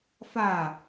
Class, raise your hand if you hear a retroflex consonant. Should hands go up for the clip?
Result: no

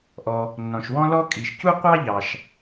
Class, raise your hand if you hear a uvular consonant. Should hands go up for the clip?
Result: yes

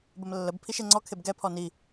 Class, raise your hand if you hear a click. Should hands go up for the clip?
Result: yes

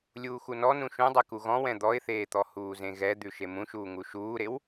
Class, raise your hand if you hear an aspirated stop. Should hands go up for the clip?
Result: no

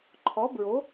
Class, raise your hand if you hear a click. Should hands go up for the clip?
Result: yes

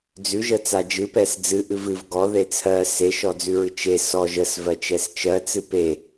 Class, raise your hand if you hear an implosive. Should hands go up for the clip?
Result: no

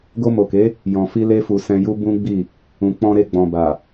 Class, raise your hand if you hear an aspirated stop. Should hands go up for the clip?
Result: no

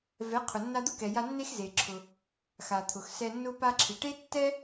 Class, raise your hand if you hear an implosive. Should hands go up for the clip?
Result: no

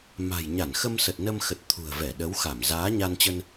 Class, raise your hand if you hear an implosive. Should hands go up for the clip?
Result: yes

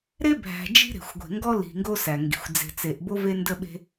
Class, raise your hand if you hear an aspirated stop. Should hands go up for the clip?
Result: no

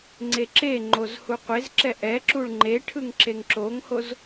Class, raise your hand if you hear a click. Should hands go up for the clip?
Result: yes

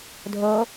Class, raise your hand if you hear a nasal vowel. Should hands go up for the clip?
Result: no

